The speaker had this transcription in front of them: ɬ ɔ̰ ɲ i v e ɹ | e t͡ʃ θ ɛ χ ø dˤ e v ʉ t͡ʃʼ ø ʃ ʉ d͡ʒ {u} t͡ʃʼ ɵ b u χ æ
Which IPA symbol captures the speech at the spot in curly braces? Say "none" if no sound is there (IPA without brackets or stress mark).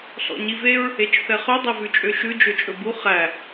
ø